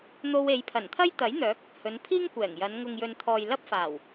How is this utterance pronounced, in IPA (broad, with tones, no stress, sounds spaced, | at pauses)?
n̪ o˧ w e˨˧ j pʰ ɐ˨˩ n t̪ʰ ɐ˥ j t̪ ɐ˨˥ j n̪ œː˨˥ k̚ | h ɵ˨˧ n pʰ iː˥ ŋ kʷ ɛː˨˩ ŋ j ɐ˨˧ n ŋ ʊ˨ ŋ j ɵ˨ n t̪ʰ ɔː˨ j l ɐ˥ p̚ f aː˨˩ w